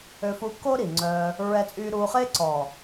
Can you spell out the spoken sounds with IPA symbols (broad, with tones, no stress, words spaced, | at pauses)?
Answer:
ø˧fu˧kːo˦ ɾi˨ŋ͡ǀœː˧ | ɹɛ˧t͡sʼyː˧ɾuː˧χe˦ ǀɔ˨